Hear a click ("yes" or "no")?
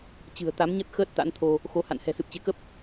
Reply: no